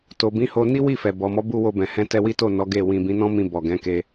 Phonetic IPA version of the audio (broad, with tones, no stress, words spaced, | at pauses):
to˨bĩ˨˦ho˧ ni˦wi˦˨fɛ˨ bɔ˨mɔ˨˦bu˧ wo˧bɛ̃˨hɛ̃˧ tɛ˧wi˦to˦˨ nɔ˨˦ɡe˦˨ wĩ˨bĩ˨˦nɔ̃˦mĩ˧ bɔ˨ɡɛ̃˨˦ke˧